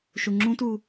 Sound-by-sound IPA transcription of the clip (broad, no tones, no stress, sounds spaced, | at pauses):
ʃ u ŋ͡ǁ ũ t u